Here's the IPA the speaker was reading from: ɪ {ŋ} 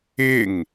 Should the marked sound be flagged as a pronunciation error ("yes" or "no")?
no